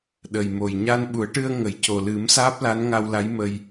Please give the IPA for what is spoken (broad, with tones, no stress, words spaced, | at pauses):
ɗə˨˩jmo˨˩j ɲa˧nɓu˨˩˦ə̯ʈɨ˧ə̯ ŋə˨˩˨jco˨˩lɨ˨˩˦m saː˦˥p̚la˧˥nŋa˧wla˧˥j mə˧j